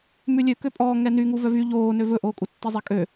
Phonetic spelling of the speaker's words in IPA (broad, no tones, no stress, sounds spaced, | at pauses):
m ʉ lʲ ø k ø pʼ ɔː ŋ ɛ n y ŋ u v œ v y ʎ oː n ø v ɵ ʔ oː kʼ u tː i zˤ e kʼ ø